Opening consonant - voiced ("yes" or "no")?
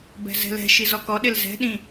yes